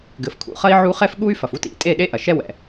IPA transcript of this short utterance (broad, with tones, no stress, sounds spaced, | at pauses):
ɡ ɘ˨ f kʰ ṵ˨ χ ɐ˧ i̯ ʕ u˦ χ ɛ˦ f ɠ u˦ y̯ f ɐ˨ f u˧ t ḭ˨ tʼ e˦˨ ɗ e˦ ʔ ɐ˨ ʃ ɛ˦ w ɛ̰˨